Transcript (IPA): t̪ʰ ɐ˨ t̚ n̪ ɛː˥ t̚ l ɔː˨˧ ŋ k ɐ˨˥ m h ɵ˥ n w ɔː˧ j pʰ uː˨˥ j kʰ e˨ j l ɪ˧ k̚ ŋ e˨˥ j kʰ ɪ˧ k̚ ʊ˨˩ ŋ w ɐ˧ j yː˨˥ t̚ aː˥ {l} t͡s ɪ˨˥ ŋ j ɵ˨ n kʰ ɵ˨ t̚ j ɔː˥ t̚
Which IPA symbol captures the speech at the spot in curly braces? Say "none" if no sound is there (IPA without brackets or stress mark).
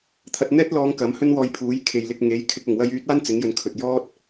n